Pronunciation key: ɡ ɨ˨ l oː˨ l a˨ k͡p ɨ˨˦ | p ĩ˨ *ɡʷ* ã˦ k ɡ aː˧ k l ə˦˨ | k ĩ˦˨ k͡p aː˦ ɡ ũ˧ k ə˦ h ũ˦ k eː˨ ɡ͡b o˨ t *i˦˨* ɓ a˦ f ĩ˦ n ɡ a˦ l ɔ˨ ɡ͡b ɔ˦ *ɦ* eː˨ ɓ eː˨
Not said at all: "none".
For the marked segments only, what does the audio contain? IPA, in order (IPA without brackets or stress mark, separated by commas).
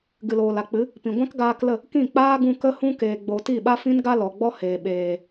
ɡʷ, i˦˨, h